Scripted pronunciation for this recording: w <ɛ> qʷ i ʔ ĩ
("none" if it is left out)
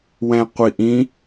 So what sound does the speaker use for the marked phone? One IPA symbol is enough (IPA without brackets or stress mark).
ɛ̃